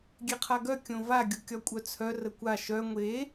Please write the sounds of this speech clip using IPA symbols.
ɡʲ e qʰ a ɡ œ kʲ õ v a ɡʲ u kʲ ɒ kʷʼ œ t͡sʰ œ r ə kʷ a ʃ œ ŋʷ e

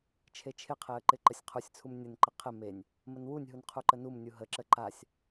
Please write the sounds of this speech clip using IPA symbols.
t͡ʃʰ e t͡ʃʰ ɪ qʰ e ə̯ ǃ ɪ ǃ ə sʲ qʰ u sʲ t͡sʰ u m nʲ ə n ǃ ə qʰ ɪ m e nʲ | m ə n w u nʲ ɦ u n qʰ u ǃ ə n u m nʲ u ɦ ə ǁ ə ǃ a sʲ

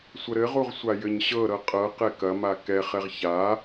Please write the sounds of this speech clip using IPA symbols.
sʷ ə ɾ ɘ ʁ u ʁ sʷ a j ɘ ɲ ɕ ɤ ɾ ɤ qʼ ɤ q ɛ k ɐ m a k ɛ χ ɛ ʁ ç a

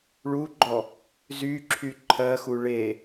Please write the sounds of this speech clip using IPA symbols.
ɭ u ɡ͡ǃ ɔ | z y ǁʰ y ǃʰ ɜ x u ɭ e

